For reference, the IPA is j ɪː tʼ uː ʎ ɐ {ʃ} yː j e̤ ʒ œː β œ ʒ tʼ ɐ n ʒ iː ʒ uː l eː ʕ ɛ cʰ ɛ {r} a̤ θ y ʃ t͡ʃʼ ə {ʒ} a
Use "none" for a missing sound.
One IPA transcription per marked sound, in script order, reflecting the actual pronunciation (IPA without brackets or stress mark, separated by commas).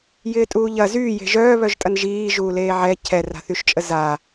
z, r, z